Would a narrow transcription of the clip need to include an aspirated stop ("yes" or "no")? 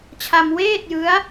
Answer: yes